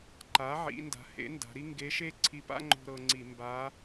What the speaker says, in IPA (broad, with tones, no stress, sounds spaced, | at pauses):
ǃ a˩˥ ʕ ḭ˩˧ n d a̤˩˥ h ḛ˩˥ n d a̤˩˧ ɾ i˥ ŋ ɡ e˧˥ ʃ e˥ ǀʰ i˧ p a̰˥ ŋ͡ǃ o̤˧ ɾ ɤ˧ ŋ͡ǀ i˧˩˧ m b a˧˥